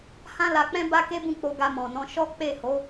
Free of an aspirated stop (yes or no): yes